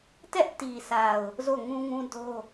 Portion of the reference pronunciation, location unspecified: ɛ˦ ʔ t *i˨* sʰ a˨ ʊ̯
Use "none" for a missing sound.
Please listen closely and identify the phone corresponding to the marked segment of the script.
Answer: i˨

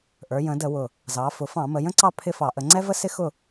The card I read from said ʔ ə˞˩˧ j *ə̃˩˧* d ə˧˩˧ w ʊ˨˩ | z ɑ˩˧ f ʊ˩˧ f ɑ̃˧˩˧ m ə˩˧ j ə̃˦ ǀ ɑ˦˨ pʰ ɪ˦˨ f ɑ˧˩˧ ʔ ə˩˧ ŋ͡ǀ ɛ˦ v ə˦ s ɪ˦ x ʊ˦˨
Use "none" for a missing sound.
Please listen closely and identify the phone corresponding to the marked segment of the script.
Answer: ə̃˩˧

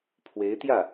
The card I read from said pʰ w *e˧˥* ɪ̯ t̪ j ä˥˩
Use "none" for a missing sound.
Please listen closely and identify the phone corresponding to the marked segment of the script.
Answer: e˧˥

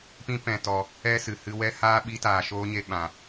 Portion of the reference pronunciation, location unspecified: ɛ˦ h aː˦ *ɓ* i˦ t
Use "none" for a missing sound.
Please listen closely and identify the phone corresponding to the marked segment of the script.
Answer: ɓ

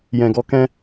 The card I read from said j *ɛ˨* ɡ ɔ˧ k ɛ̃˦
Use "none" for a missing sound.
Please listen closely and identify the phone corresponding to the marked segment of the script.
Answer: ɛ̃˨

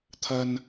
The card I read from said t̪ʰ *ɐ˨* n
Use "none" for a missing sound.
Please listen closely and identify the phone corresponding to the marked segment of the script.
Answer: ɐ˥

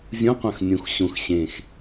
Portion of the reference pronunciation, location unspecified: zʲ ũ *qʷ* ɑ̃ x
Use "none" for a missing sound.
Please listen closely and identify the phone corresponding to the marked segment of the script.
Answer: qʷ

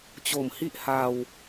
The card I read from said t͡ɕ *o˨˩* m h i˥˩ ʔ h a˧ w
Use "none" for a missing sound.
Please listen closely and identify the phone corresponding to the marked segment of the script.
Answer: o˨˩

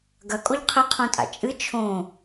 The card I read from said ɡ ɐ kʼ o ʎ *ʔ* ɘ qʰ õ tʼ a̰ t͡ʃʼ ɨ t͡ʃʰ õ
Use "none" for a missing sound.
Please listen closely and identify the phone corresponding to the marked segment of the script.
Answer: qʰ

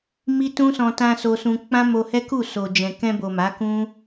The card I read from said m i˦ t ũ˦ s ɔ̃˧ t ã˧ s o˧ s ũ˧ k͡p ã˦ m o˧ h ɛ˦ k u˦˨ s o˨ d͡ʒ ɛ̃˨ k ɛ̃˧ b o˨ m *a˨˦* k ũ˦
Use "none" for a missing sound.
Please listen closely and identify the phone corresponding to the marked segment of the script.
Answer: a˨˦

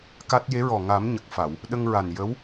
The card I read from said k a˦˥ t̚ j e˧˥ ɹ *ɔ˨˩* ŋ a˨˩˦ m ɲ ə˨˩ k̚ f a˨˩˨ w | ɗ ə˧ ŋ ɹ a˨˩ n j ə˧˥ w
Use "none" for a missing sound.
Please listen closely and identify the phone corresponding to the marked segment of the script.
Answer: ɔ˨˩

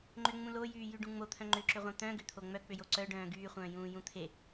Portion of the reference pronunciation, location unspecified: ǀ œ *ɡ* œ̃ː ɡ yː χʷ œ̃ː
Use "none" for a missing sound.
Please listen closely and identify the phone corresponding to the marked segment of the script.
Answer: ɖ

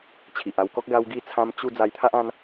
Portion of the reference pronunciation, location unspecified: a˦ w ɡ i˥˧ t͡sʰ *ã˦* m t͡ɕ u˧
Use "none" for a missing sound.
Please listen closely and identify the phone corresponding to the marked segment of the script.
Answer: ã˦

